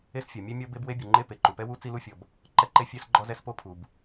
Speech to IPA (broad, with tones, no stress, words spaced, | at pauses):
e˥sfʲɔ˩mʲɛ˥ mʲɔ˥ be˥bwe˥bʲu˩ŋ͡ǃe˥ pe˩ǃu˩pɛ˥wu˥ t͡si˥lu˥fʲɔ˩b | ǃɛ˥ǃe˥ fʲɛ˥sɡ͡ǃɔ˥zɛ˥spo˥ pʰu˩b